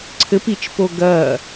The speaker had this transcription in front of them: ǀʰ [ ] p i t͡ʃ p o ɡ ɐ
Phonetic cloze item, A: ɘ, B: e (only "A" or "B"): A